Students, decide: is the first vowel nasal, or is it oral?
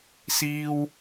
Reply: oral